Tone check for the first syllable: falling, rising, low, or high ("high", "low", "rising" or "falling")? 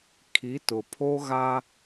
rising